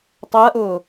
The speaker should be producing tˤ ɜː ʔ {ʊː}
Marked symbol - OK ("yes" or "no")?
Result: yes